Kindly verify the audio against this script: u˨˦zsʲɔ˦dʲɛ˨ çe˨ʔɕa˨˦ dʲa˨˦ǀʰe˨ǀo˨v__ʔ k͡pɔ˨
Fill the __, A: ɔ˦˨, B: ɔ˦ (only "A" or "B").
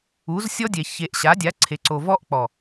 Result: B